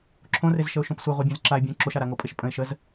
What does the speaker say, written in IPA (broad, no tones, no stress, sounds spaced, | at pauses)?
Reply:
ǁʰ õ r e z ʃ ə ʊ̯ ʃ õ p sʷ œ ʁʷ œ bʲ œ̃ z ǁ a ɪ̯ bʲ õ ǁ o ʃ a ɾ a ŋ o pʼ e ʃ pʼ ə̃ ɪ̯ ʃ ə z